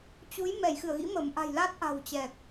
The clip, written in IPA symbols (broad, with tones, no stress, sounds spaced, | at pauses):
t͡ɕ u˨˦ j m ɛ˧˩ j x ɨ˧˩ ə̯ ɣ ḭ˧˥ m ə˧˩ m ʔ a̤˨˩ j l a˦˥ t̚ ʔ a̤˨˩ w t͡ɕ ɛ˨˩ k̚